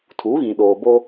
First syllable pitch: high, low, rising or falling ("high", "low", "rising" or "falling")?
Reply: rising